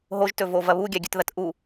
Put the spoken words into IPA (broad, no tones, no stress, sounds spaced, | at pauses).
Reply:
ɦ o ʒ t ɵ v o v ɐ β u ɡʲ a ɡʲ ɵ t ð ɐ t ʔ u